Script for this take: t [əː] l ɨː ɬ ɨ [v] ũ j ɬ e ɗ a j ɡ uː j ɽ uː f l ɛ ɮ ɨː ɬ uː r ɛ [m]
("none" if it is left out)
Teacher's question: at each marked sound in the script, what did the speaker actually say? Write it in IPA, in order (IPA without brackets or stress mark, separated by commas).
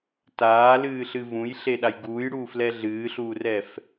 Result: aː, v, f